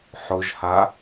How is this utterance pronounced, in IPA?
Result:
ħ ʊ ʒ h a

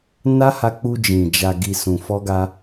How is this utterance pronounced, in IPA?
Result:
n a˦ h a˧ k͡p u˧ d͡ʒ ĩ˨ d͡ʒ a˨ ɡ i˨ s ũ˨ f ɔ˧ ɡ a˧

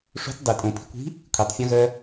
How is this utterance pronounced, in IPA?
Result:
ʂ o̤ t dˤ i tʼ õ pʰ i̤ kʷ i̤ | kʷʰ i tˤ fʲ ɔ̃ ɣ ɜ

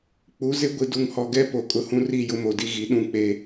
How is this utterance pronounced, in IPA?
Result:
k͡p u˨˦ z ɪ˦ ɡʷ i˨ d u˨ ŋ h ɔ˨ ɡ ɛ˦ p o˨ kʼ ʊ˨ h ũ˦ r i˦˨ j ʊ˦ m o˨ d i˦ ɣ i˨˦ ɗ ũ˦˨ k͡p e˦

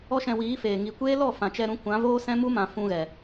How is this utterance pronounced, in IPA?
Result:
ɔ˦ ʃ ɛ̃˧ w iː˨˦ f eː˨ ŋ i˨ kʷ eː˦ l ɔ˦˨ f ã˨ t͡ʃ ɛ˧ ɾ ũ˧ kʷ ã˨˦ v oː˦ s ɛ̃˦ m u˦ m ã˨ f ũ˧ ɣ ɛ˨

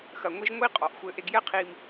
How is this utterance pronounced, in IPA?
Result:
x ɐ˨ ŋʷ i˧ ʒ ŋʷ i˦ qʼ ɔ˨ ʔ xʷ ɘ˧ ʔ e˧ ɡ j ɛ˦ qʰ i˧ m

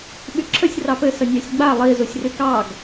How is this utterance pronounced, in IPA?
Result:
ɓ y ǁʰ ə sʲ r ɑ p ɘ s ə nʲ ɑ sʲ ɡ͡b a lˠ i z u sʲ r y k ɑ ɡ

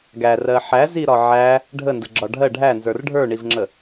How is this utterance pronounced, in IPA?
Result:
ɡ æ r ɜ ħ æ z i ɾ ɒ ʕ æ | ɖʱ ə n d ə ɡ͡ǁ ɒ ɖʱ ɜ ɖʱ æ n z ə˞ r ɖʱ ə˞ ɳ i v ŋ͡ǁ ə

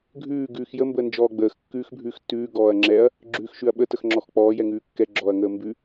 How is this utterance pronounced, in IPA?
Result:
ɡʱ ʉː ɡ ʉː x j ə m b əː n d͡ʒ ɔː ɡ͡b əː x kː ʉː x bʱ ʉː x tː ʉː ɡ ɔː ɐ̯ ŋ͡ǁ ɛ ɐ̯ | ɡ͡ǁ ʉː x ʃ ʉ ɐ̯ ɓ ə t ə x ŋ͡ǁ ɔ x k͡p ɔː j ɛ ŋ ʉː kː ɛ ɡ͡ǁ ɔː ɐ̯ ŋ əː m b ʉ

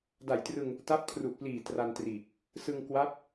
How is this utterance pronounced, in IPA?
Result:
d a˨˩ j t r ɯ˧ ŋ | t a˦˥ p̚ kʰ r u˨˩ ʔ p l iː˨˩ t r a˧ n t r iː˨˩ k̚ | s ɯ˧ ŋ k w a˦˥ p̚

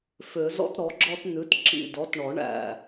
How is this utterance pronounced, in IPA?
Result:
f ø˨˩˦ z ɔ̰˦ t ɾ ɔ˩˥ ɡ͡ǁ ɔ˦ t n ʉ˩˥ t ǁ ḭ˧˩ d ɔ˩˥ t ɳ ɔ˨˩˦ ɳ æ̰˧˩

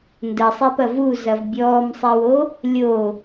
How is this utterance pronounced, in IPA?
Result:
n d ə sˤ e p ɐ v u z ɐ v bʲ ɔː m sˤ e w o | lʲ o

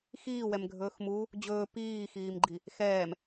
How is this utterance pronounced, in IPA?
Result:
x iː w ɛ m ɡʱ ɵː x m u | d͡ʑ ɵː p iː x iː m ɡ͡ǃ i | x ɛː m

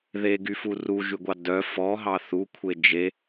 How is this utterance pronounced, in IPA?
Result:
ð e ɡ y f u r u ʒ y ɡʷ ɑ d œ f ɔ ɦ ɑ θ u kʷʰ e d͡ʒ e

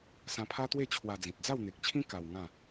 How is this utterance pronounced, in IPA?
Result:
s ã˧ pʰ a˦ t̪ w e˥˧ t͡ɕʰ w a˧ d͡z ĩ˨ t̚ d͡z a˥˧ w n̪ e˨ k̚ t͡ɕʰ ĩ˦ k a˧ w ŋ ã˥˧

